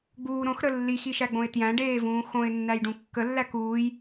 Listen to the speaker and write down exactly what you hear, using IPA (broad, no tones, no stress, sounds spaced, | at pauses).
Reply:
ɡ͡b uː ɾ õ x ɾ ə lː i x i ʃ æ ɡ͡b õ ɪ̯ t j æ̃ ɖ eː v ũː x õ ɪ̯ nː æ j ɖ ũ kː ə lː æ k uː j